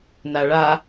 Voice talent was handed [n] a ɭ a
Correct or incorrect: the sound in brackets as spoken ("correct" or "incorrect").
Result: correct